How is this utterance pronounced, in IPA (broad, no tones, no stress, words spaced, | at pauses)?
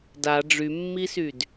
da ɖ͡ʐymːisyd